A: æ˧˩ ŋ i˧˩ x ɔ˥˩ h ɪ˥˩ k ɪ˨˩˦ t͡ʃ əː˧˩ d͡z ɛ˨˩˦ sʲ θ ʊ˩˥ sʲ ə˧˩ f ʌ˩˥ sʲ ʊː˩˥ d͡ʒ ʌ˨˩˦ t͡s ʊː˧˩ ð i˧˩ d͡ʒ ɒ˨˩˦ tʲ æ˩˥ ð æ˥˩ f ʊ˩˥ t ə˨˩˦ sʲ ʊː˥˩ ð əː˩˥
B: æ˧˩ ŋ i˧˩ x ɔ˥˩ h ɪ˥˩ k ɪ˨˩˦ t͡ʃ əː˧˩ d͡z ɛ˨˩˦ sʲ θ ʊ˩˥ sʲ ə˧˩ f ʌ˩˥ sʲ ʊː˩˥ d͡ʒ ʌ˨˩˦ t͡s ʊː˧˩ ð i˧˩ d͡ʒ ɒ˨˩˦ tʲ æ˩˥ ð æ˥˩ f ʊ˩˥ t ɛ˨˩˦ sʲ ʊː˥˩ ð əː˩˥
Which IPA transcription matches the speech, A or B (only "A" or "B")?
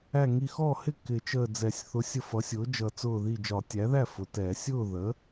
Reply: B